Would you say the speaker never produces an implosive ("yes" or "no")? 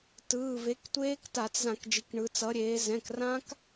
yes